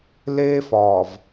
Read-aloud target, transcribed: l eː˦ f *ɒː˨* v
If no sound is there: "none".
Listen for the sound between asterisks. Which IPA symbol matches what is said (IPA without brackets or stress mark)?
ɒː˨